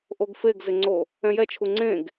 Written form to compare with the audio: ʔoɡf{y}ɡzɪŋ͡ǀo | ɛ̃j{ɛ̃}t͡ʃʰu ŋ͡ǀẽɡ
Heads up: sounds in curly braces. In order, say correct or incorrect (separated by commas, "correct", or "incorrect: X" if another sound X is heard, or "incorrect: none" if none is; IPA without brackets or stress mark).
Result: incorrect: e, incorrect: ɛ